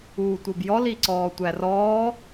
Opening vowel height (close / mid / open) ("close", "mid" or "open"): close